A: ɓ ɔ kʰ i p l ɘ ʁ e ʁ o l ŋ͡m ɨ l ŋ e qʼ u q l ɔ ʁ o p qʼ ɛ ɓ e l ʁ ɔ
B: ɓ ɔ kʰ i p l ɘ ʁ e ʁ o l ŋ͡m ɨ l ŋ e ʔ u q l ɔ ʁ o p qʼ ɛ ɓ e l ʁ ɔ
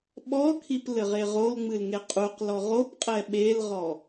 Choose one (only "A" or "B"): A